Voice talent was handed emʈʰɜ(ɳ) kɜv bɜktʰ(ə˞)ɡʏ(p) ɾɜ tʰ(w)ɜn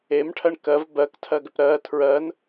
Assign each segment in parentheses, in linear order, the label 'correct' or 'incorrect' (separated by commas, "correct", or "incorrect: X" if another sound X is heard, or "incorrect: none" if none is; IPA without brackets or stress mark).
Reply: correct, incorrect: ɜ, correct, incorrect: ɹ